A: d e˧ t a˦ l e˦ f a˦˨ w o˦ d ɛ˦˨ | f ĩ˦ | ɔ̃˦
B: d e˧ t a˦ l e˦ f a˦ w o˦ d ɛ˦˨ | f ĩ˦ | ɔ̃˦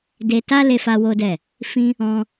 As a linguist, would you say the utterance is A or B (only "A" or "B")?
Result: B